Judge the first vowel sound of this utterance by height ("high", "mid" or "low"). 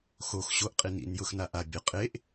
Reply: mid